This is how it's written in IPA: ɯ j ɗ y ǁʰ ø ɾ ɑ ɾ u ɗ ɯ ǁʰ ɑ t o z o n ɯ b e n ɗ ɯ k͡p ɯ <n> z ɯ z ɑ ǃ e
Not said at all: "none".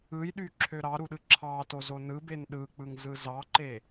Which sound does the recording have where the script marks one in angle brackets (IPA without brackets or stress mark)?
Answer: ŋ